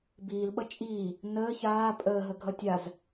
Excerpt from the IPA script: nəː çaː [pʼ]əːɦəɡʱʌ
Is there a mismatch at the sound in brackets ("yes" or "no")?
no